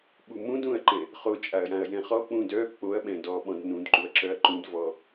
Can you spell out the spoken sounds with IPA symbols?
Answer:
ɓ u m ũ d ũ ɐ̯ ǃ ɛ̃ | χ o t͡ʃʼ a ɐ̯ j ã ɐ̯ j ɛ̃ χ ɔ k͡p ũ d œ k͡p o ɐ̯ ɓ ɛ̃ d ɔ ɓ ɔ̃ d n ũ d ǃ u ɐ̯ ǁ œ ɐ̯ ǃ ũ d v ɔ

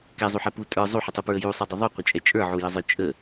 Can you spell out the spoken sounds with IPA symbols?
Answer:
k ɛ zˤ u ħ ɛ p u tʼ ə˞ zˤ u ħ ə tˤ u p ɹ ə j u sˤ ɛ dˤ ə ðˤ u qʷ ə t͡ʃʼ ɛ t͡ʃʼ ə˞ ʕ u j ə zˤ ə˞ t͡ʃʼ ə

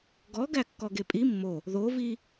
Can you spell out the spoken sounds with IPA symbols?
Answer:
ɡ ɔ ɡ æ kː ɔ ɡ e pʼ i mː o | ð o v i

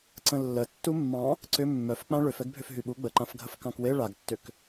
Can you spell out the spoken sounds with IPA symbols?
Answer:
ǀ ə̃ lː ə tː u mː ɑ̃ | ǀ ʏ mː œ f k͡p ã ɭ ʏ f ɛ ɡ bʱ ʏ f ɦ y ɓ u ɡ͡b ə ǃ ã f ɡʱ ə f k ɑ̃ k w e ɭ a ɡ tː ʏ k

